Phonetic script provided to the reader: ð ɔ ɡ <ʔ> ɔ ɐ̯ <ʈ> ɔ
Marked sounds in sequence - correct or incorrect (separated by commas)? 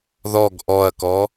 correct, incorrect